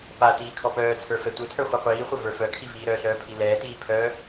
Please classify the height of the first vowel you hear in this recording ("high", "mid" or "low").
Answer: low